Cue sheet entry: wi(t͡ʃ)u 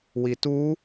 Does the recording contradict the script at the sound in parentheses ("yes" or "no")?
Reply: yes